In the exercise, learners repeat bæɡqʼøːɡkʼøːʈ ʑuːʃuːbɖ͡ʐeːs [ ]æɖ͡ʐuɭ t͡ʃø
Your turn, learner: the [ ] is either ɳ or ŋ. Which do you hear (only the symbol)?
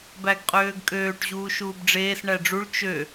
ɳ